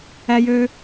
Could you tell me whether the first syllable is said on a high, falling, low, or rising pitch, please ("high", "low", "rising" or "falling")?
high